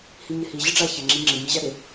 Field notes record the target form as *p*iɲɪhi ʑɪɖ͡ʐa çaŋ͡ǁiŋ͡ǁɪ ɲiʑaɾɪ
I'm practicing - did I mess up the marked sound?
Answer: yes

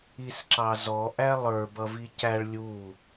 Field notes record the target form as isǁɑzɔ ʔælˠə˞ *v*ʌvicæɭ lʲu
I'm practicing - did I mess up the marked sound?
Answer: yes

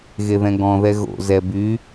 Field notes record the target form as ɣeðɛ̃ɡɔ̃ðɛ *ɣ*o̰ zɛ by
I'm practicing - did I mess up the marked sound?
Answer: no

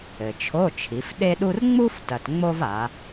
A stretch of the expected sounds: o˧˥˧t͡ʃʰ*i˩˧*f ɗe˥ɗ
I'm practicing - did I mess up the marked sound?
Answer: no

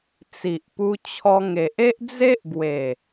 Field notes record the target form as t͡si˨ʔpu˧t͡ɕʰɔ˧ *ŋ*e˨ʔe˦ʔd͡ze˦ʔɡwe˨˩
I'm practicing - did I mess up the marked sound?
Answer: no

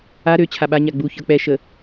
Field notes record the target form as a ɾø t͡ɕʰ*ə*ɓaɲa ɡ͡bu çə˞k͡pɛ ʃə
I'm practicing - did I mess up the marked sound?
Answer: yes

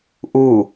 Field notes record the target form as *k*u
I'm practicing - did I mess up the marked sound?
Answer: yes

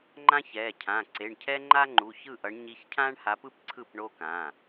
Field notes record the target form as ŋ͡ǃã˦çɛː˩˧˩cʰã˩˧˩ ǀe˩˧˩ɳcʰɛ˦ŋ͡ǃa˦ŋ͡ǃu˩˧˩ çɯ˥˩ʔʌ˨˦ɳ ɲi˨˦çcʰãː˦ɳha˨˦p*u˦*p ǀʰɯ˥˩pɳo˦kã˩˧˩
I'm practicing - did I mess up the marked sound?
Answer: yes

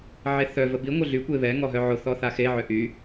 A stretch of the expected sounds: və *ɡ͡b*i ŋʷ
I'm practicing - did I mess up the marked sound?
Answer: yes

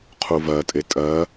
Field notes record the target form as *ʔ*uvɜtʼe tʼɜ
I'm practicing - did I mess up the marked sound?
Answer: yes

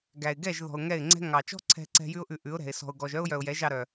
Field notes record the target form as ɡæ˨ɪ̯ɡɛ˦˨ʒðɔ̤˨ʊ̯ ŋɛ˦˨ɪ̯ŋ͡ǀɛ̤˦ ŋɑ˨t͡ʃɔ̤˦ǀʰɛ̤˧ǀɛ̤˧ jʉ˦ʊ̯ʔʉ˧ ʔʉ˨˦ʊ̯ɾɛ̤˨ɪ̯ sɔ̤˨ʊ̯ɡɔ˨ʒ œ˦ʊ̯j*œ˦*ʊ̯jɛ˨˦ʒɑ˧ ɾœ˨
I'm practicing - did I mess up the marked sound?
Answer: yes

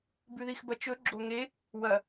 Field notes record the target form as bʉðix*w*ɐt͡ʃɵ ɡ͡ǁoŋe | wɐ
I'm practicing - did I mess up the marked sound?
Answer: yes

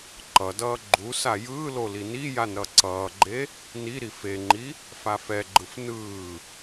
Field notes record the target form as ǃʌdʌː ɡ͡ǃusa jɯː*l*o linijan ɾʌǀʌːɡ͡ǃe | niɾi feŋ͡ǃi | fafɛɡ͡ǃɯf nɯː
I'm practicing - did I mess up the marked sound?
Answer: no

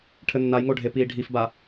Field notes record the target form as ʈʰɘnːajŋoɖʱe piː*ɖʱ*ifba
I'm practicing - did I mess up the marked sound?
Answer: no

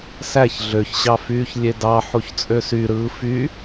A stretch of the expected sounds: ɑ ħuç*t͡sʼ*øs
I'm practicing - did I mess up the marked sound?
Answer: no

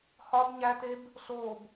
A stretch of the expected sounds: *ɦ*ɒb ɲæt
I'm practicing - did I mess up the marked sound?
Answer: yes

